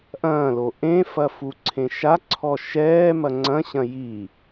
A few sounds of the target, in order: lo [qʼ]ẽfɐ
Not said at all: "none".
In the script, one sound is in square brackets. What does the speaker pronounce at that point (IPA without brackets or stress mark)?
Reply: ʔ